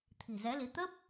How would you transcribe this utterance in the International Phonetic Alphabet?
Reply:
t̪ʰi̤˨˩zɛ˨˦li˨˦ t̪ə˦˥p̚

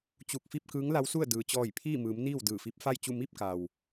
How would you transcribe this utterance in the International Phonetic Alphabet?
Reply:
t͡ɕu˧˩k̚fi˥˨p̚ kɯː˧˥ŋla˧˥wsu˥˨ə̯ dɯː˩t͡ɕɔː˧˩j pʰiː˥˨mɯː˩˧m niː˥˨wdɯː˧˩fi˧˥p̚ fa˥˨jt͡ɕu˥˨ mi˥˨p̚ka˩w

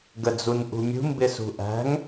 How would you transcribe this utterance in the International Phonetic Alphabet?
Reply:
ɡəd͡zunʔṳmʲṳ mbɪsṳʔæ̤ŋ

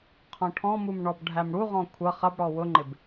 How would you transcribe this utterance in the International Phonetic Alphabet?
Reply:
qʰɔ̃ʈʰɔ̃mum ɳɔbɖʱæmɽuʁɔ̃ kʷʰʌ χʌbɽɔ wʊŋ͡ǃɪb

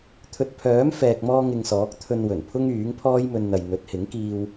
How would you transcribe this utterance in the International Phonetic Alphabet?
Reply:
t̪ʰɵ˨t̚pʰœː˨˥m fɛː˧k̚mɔː˥ŋɪ˧ŋsɔː˨˥k̚ t̪ʰɵ˧nwɵ˨˩npʰʊ˥ŋ yː˨˥ŋpʰɔː˥jmɵ˧nn̪ɐ˨j n̪ɵ˨˥t̚hɪ˨˥ŋkiː˧w

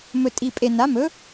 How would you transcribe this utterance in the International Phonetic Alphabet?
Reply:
mɵ˨˩tʼi˨˩pʼe˨˩ na˩˥mɵ˩˥

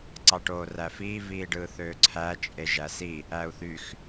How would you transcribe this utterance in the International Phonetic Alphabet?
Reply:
ǀɑʈoːræfiː viːɖɯːθøːǀʰæ t͡ʃʼeʒæsi | æu̯θyx

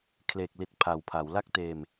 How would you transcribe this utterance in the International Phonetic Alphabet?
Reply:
kʰleː˨˩k̚li˨˩t̚ pʰa˨˩wpʰa˩˦w la˦˥k̚teː˧m

